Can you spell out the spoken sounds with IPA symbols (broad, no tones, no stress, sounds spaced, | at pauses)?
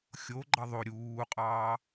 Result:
xʲ o ɡ͡ǃ ɑ ðˤ o ɾʲ uː qʼ ɑː